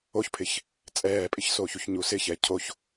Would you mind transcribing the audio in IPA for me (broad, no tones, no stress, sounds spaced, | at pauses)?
o ç pʰ ɪ ç | t͡sʼ ɛː pʼ ɪ ç s oː ç u ç ɲ u s ɪ ç ɛ cʰ o ç